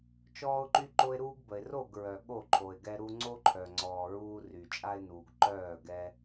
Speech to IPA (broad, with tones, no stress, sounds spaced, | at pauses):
t͡ʃ ɔː˦ ʊ̯ ǃ y˦ ǃ o˦ ɪ̯ ɾ uː˦ ɡ b ə˨ ɪ̯ r o˥˨ ɡ ɹ œ˨ ɠ o˥˨ ǃʰ o˨ ɪ̯ ɡ ɛ˦ ɾ u˦ ŋ͡ǀ o˦ ǃʰ œ˨ ŋ͡ǀ ɔː˨ ɹ uː˦ r y˨ t͡ʃʼ a˦ ɪ̯ n uː˨ ɡ ǃ œː˥˨ ɡ ɛ˦